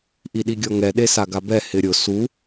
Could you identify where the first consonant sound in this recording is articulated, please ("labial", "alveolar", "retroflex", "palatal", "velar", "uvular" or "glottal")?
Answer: glottal